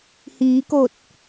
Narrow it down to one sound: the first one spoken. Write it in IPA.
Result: h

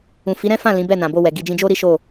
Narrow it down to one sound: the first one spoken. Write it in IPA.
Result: ũ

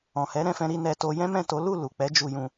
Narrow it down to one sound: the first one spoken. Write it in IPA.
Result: ɔ̃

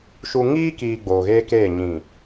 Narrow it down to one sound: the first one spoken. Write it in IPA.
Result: ʃ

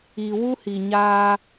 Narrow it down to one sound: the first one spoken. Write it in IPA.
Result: i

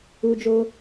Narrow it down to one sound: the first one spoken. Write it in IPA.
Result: u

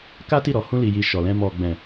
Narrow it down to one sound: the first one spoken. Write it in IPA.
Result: k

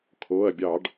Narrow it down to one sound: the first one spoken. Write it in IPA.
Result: kʰ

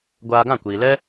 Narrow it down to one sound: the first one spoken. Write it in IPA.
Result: ɡʷ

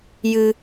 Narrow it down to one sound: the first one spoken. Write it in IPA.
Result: j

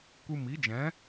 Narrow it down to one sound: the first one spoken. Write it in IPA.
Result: kʷ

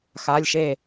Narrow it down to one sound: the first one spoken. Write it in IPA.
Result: x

